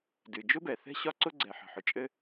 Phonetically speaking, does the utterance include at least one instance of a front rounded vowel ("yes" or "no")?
no